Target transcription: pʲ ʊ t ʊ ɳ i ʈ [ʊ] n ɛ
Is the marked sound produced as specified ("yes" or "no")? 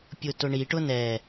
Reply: yes